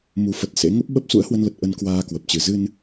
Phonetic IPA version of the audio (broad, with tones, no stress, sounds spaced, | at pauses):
m u˨˦ f ə˨˩ t̚ s ḛ˧˥ ŋ ə˦˥ p̚ ɓ ə˦˥ p̚ s ṵ˧˥ ə̯ h w ə˧ n l ə˨˩ t̚ ʔ ə˧ n k w aː˧ k w ə˨˩ p̚ t͡ɕ ɨ˨˩ z ɨ˧ n